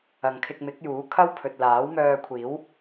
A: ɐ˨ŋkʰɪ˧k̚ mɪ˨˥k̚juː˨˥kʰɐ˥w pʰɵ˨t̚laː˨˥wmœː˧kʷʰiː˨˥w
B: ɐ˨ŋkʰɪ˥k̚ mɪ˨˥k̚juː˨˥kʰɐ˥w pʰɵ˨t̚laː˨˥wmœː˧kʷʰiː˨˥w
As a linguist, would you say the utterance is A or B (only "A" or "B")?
A